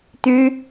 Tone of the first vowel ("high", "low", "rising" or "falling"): high